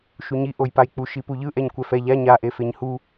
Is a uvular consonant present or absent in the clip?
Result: absent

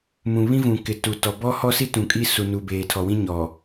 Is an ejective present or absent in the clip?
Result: present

